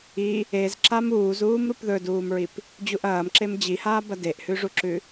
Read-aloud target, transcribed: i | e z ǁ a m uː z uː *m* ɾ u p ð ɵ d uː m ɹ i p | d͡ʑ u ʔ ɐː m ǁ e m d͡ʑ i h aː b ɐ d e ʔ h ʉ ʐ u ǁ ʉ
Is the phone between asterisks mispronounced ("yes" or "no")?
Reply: no